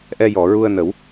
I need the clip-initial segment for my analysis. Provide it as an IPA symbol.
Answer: ʔ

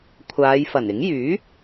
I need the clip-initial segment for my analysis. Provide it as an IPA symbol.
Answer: kʷʰ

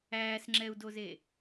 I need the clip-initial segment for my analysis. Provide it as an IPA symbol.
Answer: æː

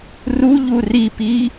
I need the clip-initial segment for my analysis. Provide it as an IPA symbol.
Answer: r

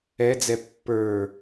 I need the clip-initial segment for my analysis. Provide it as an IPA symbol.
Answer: ɛ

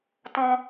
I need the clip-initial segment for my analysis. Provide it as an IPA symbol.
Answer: t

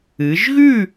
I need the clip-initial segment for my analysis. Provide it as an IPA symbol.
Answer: ɨ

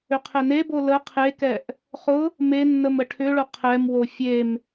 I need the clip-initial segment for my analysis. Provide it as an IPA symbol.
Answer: ʏ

